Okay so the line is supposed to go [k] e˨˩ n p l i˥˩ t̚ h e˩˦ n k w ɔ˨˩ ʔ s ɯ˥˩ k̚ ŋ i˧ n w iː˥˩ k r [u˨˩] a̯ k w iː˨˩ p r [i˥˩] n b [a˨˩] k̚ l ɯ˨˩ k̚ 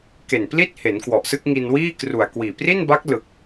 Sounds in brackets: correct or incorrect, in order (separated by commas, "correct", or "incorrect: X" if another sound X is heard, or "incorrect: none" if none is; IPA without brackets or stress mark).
correct, correct, correct, incorrect: a˦˥